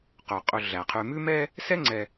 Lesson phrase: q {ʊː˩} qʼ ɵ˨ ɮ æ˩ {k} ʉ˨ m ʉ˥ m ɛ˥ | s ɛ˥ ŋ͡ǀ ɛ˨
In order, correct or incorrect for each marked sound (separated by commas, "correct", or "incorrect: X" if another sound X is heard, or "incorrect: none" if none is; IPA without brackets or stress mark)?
incorrect: ɵː˩, incorrect: qʰ